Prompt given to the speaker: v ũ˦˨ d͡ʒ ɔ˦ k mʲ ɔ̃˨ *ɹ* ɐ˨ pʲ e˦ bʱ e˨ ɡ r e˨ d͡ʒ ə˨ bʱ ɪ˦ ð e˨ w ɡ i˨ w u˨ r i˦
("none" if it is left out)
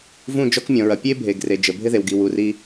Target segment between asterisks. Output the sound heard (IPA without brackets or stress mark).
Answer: ɹ